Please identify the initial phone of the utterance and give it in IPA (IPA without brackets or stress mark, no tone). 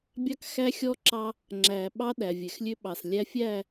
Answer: bʲ